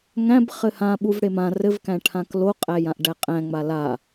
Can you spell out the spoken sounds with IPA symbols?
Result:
ŋ æ̃ b χ ɘ h ã ɓ u v ɽ e m ã r ɘ v k æ̃ ʈʰ ã k l o qʼ æ j ã ʔ ɖ æ qʼ æ̃ ŋ͡m a l a

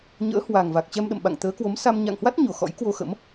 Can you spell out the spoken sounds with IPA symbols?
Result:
ɲ ə̰ː˧˥ h w a˨˩ ŋ v a˨˩ k̚ t͡ɕ ɛ˧ m ɗ ə̰˧˨ m ɓ a̰˧˨ ŋ t̪ əː˨˦ k w o˨˦ m s a˧ m ɲ a̰˧˨ ŋ h w a˦˥ t̚ ɲ o˧˩ x ɔ̰˧˥ j k w o˧ x ə̰˧˥ m

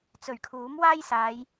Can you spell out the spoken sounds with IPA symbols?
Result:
t͡s ɵ˨˩ ɥ kʰ uː˨˥ m w aː˥ j s aː˨˧ j

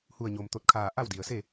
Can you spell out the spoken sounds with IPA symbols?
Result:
h u˧˩ ə̯ ɲ o˩ m t̪ o˧˩ t̚ kʰ aː˧˩ ʔ a˥˨ w d i˩ ə̯ s e˥˨

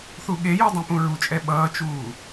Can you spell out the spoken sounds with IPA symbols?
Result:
θ u ɠ e j u dˤ õ p ũ ɹ u t͡ʃʼ ɛ ɓ ʌː t͡ʃ uː

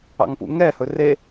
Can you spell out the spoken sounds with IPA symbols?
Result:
ɑ̰ ŋ p ṵ ŋ ɛ h ɵ r e

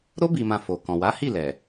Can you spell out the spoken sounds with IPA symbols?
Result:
ɾ o˦ b i˧ m ã˧ f o˨ k ɔ̃˨ w a˨˦ h i˦˨ l ɛ˨

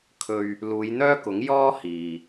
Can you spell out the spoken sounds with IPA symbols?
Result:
kʰ ɵ˧ ɥ | l uː˨˧ j n̪ œː˥ k ʊ˨˥ ŋ j ɔː˥ h iː˨

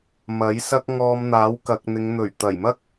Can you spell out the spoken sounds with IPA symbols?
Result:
m ɐ˨˥ j s ɐ˥ k̚ ŋ ɔː˧ m n̪ aː˨˥ w k ɐ˨ k̚ n̪ ɪ˨˧ ŋ n̪ ɵ˨˩ ɥ t̪ ɐ˨˩ j m ɐ˥ k̚

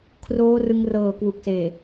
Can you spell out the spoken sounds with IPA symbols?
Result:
kʰ r oː˦˥ r ɯ˧ ŋ r ɤː˨˩ k w u˨˩ k̚ s eː˨˩

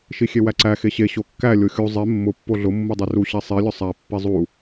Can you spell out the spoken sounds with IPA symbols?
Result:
ʃ i xʲ e w æ ǀ æ x e ɕ e ɕ o kː æ lʲ o xʲ u zˤ e mː ʊ pː o ɮ ʊ mː u dˤ e r u ɕ e sˤ i lʲ ʊ sˤ æ pː i zˤ u

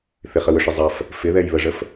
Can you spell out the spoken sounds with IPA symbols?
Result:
θ ɪ χ ə w ʏ ʂ ɪ zˤ ɐ f | f ɪ ð ɛ j β ə ʐ ə f

